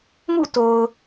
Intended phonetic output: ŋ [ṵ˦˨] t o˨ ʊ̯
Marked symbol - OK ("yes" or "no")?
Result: yes